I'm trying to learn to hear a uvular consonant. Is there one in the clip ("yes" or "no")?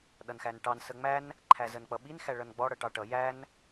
no